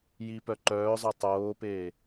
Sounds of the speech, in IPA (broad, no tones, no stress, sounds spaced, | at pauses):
j i p œ ǃ œː zˤ œ tˤ oː p eː